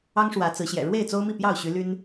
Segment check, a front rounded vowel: present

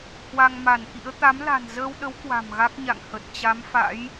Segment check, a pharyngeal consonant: absent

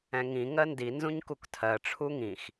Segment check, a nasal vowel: present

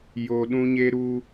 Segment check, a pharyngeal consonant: absent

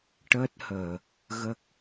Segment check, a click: absent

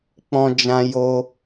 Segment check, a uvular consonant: absent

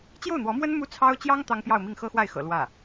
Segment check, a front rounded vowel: absent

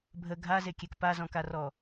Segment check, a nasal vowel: present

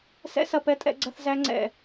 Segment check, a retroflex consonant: absent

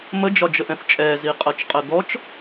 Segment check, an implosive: absent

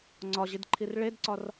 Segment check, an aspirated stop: present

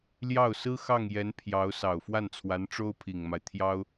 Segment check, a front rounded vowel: absent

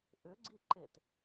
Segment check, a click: present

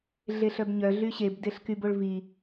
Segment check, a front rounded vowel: present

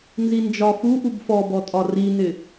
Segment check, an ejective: present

